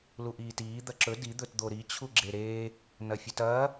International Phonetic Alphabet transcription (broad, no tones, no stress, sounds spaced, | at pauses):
l u ʔ iː t iː d̪ ɐ ǁ ɵ d i d̪ ɵ t d̪ o ɾ i t͡ɕʰ u ɡ͡ǁ e ɾ eː | n ɐ fʲ ʉ t ɐː